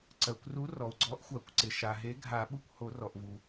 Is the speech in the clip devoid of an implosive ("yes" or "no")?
no